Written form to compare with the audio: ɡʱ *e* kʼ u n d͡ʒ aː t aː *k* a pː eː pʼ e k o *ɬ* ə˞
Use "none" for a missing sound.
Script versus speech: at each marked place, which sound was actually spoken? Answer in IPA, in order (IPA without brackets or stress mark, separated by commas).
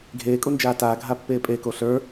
eː, ɡʱ, ɬ